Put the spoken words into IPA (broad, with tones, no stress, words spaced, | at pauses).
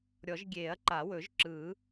ɾʲɔ˨˩˦ʒ ɡʲeː˨˩˦ɐ̯ǃa˨˩˦wɵ˨˩˦ʒǁɯː˨˩˦